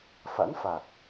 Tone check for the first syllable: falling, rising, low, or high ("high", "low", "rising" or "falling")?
rising